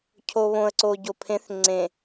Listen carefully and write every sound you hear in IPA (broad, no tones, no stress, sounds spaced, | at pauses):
cʰ o β õ ə̯ ǀ o ɟ o pʰ ẽ θ ŋ͡ǀ ẽ